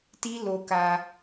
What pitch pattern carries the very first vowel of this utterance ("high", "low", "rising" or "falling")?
high